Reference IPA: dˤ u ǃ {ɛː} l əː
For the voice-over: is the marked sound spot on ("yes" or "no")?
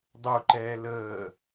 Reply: yes